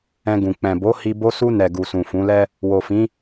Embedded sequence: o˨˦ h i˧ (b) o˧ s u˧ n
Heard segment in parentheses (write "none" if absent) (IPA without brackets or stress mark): b